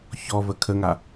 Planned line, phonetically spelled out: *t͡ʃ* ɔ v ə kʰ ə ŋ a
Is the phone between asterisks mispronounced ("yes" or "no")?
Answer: yes